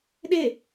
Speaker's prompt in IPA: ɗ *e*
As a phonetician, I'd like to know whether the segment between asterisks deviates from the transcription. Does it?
no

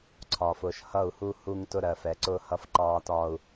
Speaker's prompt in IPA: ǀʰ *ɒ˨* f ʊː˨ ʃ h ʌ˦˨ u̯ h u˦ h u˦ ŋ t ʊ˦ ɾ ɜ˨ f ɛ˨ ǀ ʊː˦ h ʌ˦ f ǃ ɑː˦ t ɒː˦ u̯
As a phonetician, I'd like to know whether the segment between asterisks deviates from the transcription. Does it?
no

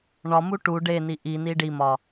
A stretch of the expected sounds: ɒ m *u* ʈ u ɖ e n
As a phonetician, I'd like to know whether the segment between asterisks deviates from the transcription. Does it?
no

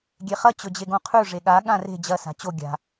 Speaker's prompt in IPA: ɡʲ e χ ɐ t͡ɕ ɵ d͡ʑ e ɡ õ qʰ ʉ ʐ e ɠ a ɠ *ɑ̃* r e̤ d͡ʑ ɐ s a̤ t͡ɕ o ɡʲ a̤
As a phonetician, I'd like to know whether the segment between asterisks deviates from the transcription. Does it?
yes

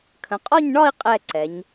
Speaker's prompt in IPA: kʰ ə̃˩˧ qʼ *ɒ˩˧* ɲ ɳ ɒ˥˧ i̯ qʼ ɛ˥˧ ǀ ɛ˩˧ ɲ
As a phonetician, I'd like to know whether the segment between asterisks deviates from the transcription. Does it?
yes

